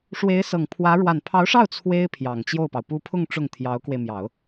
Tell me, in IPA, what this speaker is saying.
ʂwe˧˥ɪ̯sɤ˨˩ŋpʰwä˧˥ ɻwa˨˩npʰɑ˧˥ʊ̯ʂɑ˥˩ʊ̯ t͡sʰwe˥ɪ̯ pʰjɑ˨˩ŋt͡ɕjo˥˩ʊ̯pɑ˩ʊ̯ pu˥˧ pʰʊ˥˧ŋ ʈ͡ʂʊ˥˩ŋt̪ʰjɑ˧˥ʊ̯kwe˧ɪ̯ mjɑ˨˩˦ʊ̯

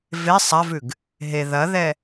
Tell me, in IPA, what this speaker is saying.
ve sˤavʉɡ | ɦe ðɐðɛ

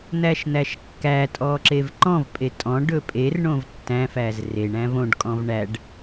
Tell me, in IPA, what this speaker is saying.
n̪æʃn̪æʃkːætʼɔ ǁevǃɔ̃vpʼe tʼɔ̃ɖɵ pʼerɳõv tːæ̃fæz reɳ æ̃võɖkʼɔ̃v ɳæɖ

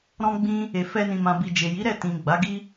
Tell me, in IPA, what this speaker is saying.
ɾɔ̃˧ɡ͡bĩ˧ | e˨fɛ˧nĩ˨mã˨ bi˨ d͡ʒe˨ji˨˦ɾɛ˦˨ tĩ˨ɡ͡ba˨˦ɡi˦

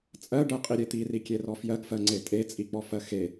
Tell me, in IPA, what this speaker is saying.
t͡sʼɜɖɜqʼiɾʲe t̪irikʲerɔ fjɜɡfɜŋ͡ǀe tʼet͡sʼik͡pɔfɜ xe

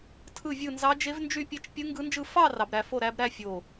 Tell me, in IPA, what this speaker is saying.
tʰɯ˥˧vʲɯ˥˧nzɑ˦˥ d͡ʒe˦˥vnd͡ʒy˥˧pʲe˥˧t͡ʃ pʲɯ˦˥ŋɡɯ˦˥nd͡ʒɯ˥˧ fɑ˥˧ rɑ˦˥bɾæ˦˥ fo˥˧ɾæ˦˥b ɾæ˥˧ fʲo˥˧

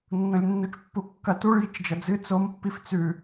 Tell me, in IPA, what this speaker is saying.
nːõlʲnːut͡ʃpːukːɐ tuɭjit͡ʃ d͡ʒɐd͡zɨ t͡sompːif t͡sʉ

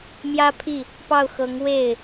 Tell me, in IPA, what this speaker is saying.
mjä˥pʰi˥˩ | pɑ˥˩ʊ̯xɤ˧˥ŋ we˥˩ɪ̯

